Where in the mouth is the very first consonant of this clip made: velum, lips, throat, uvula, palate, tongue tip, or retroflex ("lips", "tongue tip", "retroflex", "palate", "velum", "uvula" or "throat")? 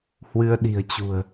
throat